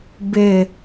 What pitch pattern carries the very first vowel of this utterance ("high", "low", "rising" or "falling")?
low